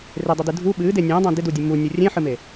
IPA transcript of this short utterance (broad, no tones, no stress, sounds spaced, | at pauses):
r e dˤ ɨ d ɨ dʱ u ɓ ɨː d e nʲ ə̃ː dˤ ə̃ː d ɪ d u dʲ ɨ m u nʲ u rʲ ẽ ħ ɨ m e